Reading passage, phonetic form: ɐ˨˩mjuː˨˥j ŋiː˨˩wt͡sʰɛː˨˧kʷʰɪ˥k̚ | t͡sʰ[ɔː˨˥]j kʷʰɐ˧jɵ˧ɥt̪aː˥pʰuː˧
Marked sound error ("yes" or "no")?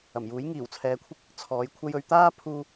no